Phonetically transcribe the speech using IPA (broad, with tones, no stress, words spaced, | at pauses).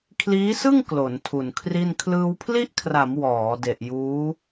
kʰliː˦˥sɯ˥˩ŋ klo˩˦ntʰu˨˩nkʰri˥˩n kʰlɯː˧wpʰli˥˩ʔkʰra˩˦m wɔː˩˦ de˨˩ʔjuː˦˥